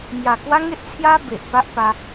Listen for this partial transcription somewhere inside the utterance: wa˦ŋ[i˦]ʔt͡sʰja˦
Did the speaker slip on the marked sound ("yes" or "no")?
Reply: yes